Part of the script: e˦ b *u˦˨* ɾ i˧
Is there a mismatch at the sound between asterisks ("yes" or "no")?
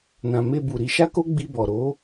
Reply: yes